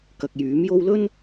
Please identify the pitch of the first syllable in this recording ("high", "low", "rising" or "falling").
low